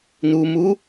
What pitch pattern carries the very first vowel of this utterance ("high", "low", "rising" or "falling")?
low